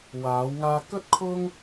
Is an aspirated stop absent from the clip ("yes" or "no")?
no